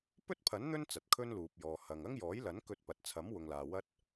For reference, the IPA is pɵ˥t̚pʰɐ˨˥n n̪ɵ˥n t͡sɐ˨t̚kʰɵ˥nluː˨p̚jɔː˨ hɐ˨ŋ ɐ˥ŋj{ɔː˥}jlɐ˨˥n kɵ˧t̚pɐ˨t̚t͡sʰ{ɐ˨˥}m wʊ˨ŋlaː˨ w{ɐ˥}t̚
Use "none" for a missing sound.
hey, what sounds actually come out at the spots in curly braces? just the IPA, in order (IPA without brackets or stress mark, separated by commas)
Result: ɔː˨˥, ɐ˨˥, ɐ˥